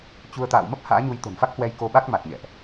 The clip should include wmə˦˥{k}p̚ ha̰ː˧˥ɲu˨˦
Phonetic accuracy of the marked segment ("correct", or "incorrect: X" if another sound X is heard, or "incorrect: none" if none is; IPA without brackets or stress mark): incorrect: none